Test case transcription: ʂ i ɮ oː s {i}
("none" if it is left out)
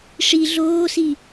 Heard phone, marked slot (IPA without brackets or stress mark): i